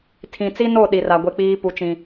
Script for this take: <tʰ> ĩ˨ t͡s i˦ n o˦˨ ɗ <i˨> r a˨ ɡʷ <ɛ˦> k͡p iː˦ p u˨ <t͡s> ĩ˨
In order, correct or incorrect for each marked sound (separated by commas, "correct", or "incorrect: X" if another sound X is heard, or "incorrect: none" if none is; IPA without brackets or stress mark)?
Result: correct, correct, incorrect: e˦, incorrect: t͡ʃ